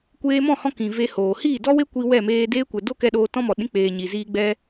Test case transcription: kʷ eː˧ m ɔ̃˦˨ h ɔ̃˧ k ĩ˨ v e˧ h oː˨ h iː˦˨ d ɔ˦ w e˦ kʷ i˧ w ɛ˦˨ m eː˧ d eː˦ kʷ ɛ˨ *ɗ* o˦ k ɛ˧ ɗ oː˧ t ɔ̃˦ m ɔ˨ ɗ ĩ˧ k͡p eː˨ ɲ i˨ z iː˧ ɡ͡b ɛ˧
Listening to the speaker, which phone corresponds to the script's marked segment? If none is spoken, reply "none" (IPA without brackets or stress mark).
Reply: d